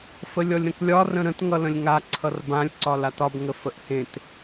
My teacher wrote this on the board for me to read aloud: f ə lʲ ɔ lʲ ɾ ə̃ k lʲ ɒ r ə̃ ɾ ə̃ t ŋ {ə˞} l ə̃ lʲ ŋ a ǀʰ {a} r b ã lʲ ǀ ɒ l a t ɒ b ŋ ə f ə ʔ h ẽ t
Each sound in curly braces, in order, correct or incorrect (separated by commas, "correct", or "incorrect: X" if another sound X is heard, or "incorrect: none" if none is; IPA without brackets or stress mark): incorrect: ʌ, incorrect: ʌ